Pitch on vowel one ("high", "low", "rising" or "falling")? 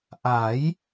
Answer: rising